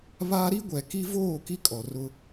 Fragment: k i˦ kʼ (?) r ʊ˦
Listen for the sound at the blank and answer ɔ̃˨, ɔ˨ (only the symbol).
ɔ˨